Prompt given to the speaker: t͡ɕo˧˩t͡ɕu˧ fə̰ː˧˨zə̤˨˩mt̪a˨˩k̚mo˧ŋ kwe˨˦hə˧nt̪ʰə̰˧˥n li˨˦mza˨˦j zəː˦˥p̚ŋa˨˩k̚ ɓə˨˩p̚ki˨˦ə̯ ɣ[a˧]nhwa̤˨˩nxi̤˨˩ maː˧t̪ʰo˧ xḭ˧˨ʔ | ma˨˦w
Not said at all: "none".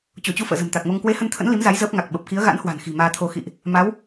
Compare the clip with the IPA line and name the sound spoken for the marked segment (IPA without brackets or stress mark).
a̰˧˥